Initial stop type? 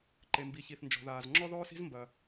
click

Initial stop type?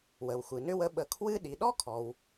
implosive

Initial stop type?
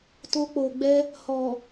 plain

